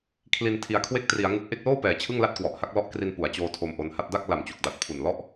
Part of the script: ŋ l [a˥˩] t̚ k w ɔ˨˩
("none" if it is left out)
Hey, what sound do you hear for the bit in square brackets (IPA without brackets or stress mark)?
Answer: a˥˩